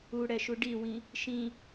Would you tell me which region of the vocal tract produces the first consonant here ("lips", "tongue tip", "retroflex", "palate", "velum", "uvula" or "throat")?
retroflex